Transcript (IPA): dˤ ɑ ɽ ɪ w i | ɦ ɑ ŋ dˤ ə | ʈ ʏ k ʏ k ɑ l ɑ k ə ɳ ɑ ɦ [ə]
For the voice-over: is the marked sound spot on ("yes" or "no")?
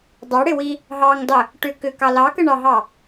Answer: no